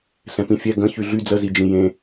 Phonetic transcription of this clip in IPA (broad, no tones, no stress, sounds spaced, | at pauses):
s ɛ̃ p ĩ fʲ ɛ ɡ ə̃ ç y ɮ y d͡z ə z i d͡ʒ ĩ j ẽ